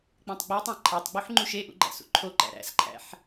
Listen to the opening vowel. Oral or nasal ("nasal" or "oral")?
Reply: nasal